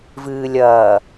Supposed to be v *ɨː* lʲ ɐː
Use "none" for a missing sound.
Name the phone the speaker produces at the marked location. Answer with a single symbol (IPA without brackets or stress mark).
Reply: ɨː